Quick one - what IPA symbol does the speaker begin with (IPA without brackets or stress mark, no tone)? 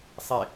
sˤ